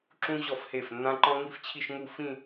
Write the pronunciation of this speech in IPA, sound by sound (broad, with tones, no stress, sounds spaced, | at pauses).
ǁ ũ˥ ʑ ɔ˥˩ f h e˥˩ f nː ã˥ ǃ ɔ̃˥ ŋ i˥ f t͡ɕʰ i˥˧ ʃ ŋ u˥˧ f ĩ˥˧